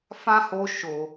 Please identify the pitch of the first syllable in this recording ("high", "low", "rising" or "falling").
high